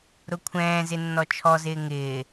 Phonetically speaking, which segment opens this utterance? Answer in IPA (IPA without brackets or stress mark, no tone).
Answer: ɾ